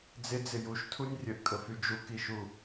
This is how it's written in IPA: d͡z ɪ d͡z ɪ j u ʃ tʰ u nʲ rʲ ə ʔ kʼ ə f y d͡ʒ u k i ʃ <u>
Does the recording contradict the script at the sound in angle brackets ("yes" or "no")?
no